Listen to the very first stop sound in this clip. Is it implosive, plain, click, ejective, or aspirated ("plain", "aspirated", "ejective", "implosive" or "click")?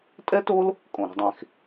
ejective